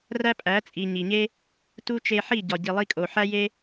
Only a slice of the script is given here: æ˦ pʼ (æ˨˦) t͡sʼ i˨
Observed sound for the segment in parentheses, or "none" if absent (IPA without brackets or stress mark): æ˨˦